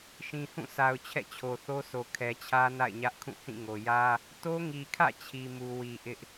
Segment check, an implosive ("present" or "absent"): absent